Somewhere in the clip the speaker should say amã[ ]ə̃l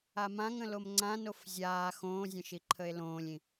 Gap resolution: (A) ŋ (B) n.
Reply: A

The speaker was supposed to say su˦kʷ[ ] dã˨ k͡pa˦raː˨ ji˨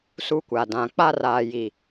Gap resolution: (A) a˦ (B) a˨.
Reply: B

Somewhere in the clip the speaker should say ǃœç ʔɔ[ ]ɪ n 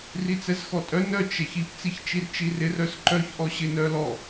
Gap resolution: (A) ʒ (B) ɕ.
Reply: B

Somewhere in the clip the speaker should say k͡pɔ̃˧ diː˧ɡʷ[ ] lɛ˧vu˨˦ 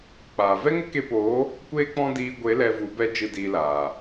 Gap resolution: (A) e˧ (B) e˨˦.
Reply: B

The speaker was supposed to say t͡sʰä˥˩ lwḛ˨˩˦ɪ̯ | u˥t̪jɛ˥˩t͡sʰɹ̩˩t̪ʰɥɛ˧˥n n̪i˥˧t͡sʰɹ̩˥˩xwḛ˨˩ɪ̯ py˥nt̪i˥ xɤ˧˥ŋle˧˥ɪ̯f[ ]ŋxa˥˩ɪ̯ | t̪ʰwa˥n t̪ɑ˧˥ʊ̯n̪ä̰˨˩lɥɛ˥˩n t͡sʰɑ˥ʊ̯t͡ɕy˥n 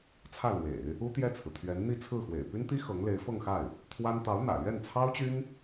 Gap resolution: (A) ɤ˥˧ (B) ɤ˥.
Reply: A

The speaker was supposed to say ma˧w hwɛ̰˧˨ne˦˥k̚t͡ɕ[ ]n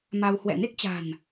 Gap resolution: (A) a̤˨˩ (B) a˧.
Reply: A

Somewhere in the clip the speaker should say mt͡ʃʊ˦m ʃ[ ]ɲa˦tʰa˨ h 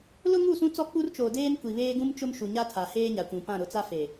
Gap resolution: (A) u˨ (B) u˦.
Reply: A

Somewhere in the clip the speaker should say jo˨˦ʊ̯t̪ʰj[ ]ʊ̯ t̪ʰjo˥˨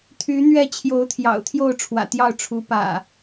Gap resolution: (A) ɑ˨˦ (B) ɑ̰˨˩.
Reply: B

